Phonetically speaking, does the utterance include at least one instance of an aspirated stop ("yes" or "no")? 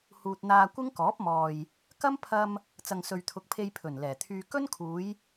yes